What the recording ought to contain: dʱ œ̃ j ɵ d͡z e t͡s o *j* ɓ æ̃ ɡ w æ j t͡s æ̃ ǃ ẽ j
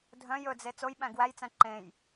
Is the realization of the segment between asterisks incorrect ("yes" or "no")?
no